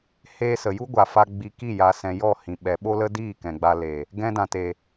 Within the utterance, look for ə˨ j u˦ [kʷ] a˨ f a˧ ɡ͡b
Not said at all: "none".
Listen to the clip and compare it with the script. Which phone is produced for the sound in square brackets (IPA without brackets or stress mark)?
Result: ɡʷ